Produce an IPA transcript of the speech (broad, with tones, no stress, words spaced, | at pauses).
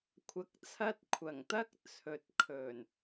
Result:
kʷʰɐ˧k̚t͡sʰɐ˥t̚kʷʰɐ˨˩ŋ t̪ɐ˥k̚ t͡sʰɵ˨˥t̚kʰɵ˨˩n